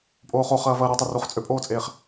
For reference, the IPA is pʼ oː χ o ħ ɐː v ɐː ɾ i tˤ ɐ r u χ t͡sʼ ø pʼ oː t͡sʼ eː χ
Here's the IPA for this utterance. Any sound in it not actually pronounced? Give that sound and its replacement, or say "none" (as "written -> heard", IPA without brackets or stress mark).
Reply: ħ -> χ